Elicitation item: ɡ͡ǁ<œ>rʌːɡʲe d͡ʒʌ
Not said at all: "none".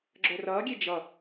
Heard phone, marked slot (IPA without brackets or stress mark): œ